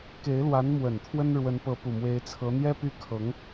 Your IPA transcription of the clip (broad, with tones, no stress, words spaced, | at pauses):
ke˧˥ɪ̯lwa˧˥n mwə˨˩nt̪ʰwə˥n ɻwə˧˥npɤ˧˥pu˨˩ mwe˧˥ɪ̯t͡sʰɤ˧˥ n̪jɛ˥py˥˩ kʰɤ˧˥ŋ